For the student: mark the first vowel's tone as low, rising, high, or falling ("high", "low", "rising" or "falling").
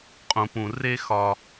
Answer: low